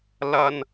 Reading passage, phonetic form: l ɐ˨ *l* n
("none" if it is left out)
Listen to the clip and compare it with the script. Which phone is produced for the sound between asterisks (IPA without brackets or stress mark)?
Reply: none